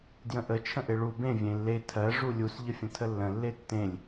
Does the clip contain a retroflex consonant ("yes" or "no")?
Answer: yes